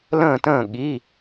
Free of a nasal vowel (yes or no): no